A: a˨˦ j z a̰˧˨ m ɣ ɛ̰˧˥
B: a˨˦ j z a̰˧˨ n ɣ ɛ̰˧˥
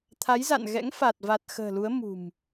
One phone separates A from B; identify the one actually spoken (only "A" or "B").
B